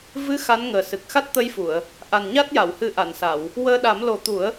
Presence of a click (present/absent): absent